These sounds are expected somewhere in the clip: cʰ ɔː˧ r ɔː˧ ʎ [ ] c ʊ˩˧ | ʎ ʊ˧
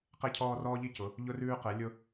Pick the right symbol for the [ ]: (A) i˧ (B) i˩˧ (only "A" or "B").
A